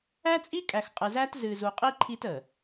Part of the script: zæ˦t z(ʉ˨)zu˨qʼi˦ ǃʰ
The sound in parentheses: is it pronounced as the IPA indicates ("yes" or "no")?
no